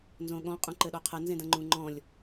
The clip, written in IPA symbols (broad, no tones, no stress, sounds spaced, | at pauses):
n z õ ɠ ɔ̃ qʼ ũ ǃ ɘ ɗ ɔ qʰ ɐ n z ẽ d ɐ̃ ŋ͡ǃ ũ ŋ͡ǃ ɔ̃ lʲ